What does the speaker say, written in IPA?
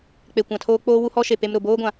k͡pe˨kʷã˨tʰoː˦ k͡poː˦wu˦hɔ˦ʃe˨ pe˦mɾʊ˨ boː˦ɡʷã˨

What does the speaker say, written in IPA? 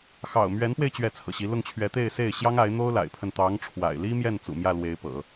xɑ̰˨˩ʊ̯mɥɛ˧˥npwe˧ɪ̯ t͡ɕɥɛ˥˩t͡sʰɤ̰˨˩ɕi˧˥ lʊ˥˩ŋt͡ɕʰɥɛ˧˥ t̪e˥˧ɪ̯se˥˩ɪ̯ ɕjɑ˥ŋa˧˥ɪ̯n̪o˥ʊ̯ la̰˨˩ɪ̯pʰə˥˩n t̪ɑ˧˥ŋʈ͡ʂʰwa̰˨˩ɪ̯li˥mjɛ˥˩n t͡sṵ˨˩mjä˥˩ lwe˧˥ɪ̯ pɤ̰˨˩˦

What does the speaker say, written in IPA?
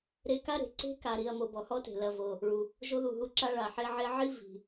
ɾe˦ka˥ɾe̤˩ ǀe̤˥ka˨ɾi˨ɐ̯ mo˨bɔ˨hɔ˥te̤˩ lɐ˨vo˩ | ɭu˩ | ʒo˦ðu˩ɦu˦ǁa˦ ɭa˩ħe˦ʕe˦ʕi˥ vi̤˩

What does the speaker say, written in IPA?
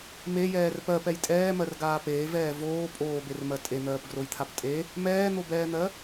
mejɛːr pɜpɛj tʼɛːmɜrɡaː peːvɛː voː pʼoːbermɜ tʼen̪ɜːpɡrojt̪ʰap tʼe | mɛːn̪obɛːn̪ɜ

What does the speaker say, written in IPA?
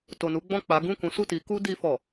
to˨nu˨˦ɡ͡bɔ̃˦˨k͡pa˨˦ ɡũ˦˨kũ˨˦su˦˨ti˨˦ ku˦di˧fɔ˨

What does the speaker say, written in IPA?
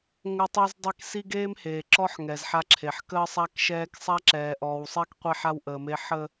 ŋə˦tˤi˦zdˤe˦k si˦ɡeː˦mheː˨ǁɔ˦ħ ŋɛ˨zħa˦ǁʰe˨ħ kəː˦sˤa˦kʃɛː˦k sˤa˦ǁɛː˨ʔɔː˨wsˤe˦k qʷɛ˦ħa˦wʔəː˨me˦ ħə˦

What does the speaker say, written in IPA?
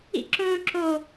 ḭǁõːǁo

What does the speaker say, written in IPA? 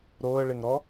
ɾoːə̯ɭeŋɾɔ

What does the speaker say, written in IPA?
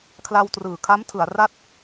kʰla˧wtrɯː˨˩kʰa˦˥m tʰɯ˩˦a̯ra˥˩t̚

